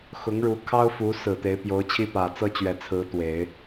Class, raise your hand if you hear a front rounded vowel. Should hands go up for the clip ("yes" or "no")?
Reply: no